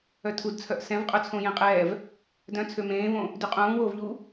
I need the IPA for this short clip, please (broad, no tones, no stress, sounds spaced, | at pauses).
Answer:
œ tʰ u d t͡sʰ œ ʔ s ɛ̃ v qʼ œ t͡sʰ õ j ẽ qʼ ɛː v | d œ̃ t͡sʰ ø m ẽː v õ | d y qʼ ũː w oː v ʎ u